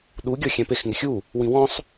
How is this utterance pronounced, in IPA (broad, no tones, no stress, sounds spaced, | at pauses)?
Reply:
ɗ u ɡʲ ɔ xʲ ɛ̃ p e x ŋ ɪ xʲ u | w ĩ w ɔ̃ sˤ